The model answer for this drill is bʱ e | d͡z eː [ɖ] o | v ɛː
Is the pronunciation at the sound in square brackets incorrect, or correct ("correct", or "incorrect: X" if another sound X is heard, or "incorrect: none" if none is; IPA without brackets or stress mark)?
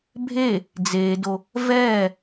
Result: incorrect: d